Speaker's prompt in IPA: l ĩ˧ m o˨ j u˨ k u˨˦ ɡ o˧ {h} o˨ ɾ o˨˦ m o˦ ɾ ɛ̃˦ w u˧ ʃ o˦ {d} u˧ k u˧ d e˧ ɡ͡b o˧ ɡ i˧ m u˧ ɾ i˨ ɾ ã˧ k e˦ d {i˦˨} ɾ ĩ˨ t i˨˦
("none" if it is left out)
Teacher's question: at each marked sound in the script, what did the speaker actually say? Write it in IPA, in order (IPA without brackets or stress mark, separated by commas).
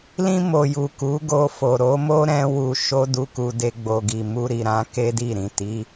f, d, i˦˨